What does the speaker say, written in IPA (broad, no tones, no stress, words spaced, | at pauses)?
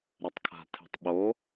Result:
ɾɛtˤkʰa̤tʰe̤tˤɓo